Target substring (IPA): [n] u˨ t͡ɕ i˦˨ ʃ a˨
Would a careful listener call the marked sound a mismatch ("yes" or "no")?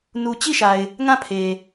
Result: no